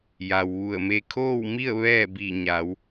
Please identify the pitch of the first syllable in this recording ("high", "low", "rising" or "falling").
low